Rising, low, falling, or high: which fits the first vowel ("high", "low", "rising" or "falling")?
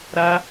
high